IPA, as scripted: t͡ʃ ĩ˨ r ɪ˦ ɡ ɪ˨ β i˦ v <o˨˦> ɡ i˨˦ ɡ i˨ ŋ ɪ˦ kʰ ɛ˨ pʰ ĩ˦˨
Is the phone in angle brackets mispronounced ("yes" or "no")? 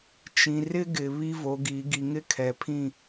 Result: no